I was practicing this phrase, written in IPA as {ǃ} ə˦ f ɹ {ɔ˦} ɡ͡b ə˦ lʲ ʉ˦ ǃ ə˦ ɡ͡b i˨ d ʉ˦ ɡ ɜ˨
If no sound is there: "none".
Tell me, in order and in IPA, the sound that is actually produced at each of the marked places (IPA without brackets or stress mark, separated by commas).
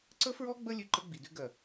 ǀ, ɔ˦